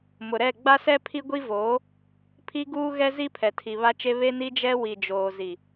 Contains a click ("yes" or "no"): no